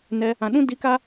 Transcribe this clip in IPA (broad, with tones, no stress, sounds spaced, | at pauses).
n ɛ˧ | ã˨ ɗ ũ˦ d i˧ k a˦